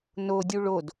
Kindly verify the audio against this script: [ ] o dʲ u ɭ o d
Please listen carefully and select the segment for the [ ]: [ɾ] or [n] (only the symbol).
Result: n